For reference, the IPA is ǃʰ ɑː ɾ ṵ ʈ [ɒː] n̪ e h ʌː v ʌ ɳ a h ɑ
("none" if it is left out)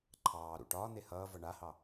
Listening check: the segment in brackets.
ɒː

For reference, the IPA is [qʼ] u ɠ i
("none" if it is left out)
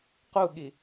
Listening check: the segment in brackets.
q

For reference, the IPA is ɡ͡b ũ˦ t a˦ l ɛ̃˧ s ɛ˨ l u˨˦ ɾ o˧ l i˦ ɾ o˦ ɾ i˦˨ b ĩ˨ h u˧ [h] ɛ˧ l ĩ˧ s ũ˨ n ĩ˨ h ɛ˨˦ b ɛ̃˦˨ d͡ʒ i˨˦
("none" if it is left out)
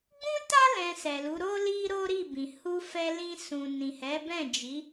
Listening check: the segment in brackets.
f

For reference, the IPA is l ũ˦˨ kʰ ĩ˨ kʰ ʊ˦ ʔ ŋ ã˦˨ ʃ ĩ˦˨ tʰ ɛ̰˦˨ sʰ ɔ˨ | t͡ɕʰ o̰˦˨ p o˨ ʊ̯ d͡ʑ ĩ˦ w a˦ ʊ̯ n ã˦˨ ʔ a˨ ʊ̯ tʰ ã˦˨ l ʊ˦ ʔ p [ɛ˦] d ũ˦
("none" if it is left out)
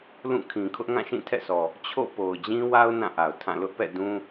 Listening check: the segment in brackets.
ɛ̰˦˨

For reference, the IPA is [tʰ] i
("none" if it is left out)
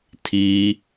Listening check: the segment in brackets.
tʰ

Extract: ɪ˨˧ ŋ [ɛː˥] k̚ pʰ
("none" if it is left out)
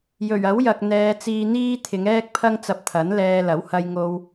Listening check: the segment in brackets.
ɛː˥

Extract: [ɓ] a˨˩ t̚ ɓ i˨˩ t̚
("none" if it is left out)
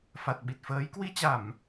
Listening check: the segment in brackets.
f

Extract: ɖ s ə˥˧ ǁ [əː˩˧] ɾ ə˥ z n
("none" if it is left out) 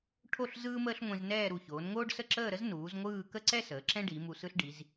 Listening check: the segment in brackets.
əː˥˧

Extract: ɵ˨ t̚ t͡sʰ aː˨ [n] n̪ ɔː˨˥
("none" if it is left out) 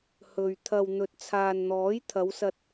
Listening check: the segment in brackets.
n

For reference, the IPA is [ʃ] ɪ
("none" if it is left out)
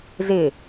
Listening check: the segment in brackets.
z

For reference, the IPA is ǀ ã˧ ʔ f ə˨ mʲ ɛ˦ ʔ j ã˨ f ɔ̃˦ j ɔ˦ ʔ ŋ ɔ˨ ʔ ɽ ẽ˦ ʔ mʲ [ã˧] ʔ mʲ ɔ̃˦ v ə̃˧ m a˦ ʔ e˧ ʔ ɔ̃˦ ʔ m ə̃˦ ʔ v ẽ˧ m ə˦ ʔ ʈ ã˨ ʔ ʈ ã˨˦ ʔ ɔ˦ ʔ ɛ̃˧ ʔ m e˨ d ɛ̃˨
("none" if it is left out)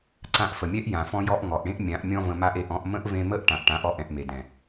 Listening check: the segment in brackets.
ã˨˦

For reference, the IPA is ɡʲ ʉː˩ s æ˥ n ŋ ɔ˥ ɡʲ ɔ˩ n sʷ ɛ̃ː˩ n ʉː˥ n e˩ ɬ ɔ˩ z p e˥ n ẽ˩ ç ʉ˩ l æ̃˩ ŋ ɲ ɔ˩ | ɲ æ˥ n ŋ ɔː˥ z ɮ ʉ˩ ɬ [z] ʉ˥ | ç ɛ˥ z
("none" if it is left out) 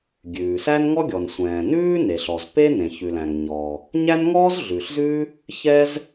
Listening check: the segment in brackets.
z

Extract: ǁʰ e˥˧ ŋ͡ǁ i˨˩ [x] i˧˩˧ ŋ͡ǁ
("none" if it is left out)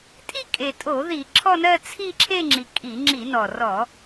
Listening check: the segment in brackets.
kʼ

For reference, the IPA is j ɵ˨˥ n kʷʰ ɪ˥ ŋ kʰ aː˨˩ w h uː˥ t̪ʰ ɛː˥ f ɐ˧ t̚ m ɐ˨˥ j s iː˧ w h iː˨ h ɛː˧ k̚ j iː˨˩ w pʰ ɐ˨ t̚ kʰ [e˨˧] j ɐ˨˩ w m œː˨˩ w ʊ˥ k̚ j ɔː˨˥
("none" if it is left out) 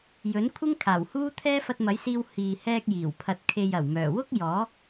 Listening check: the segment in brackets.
e˨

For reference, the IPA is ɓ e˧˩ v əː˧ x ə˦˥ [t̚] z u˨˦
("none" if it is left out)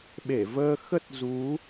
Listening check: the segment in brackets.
t̚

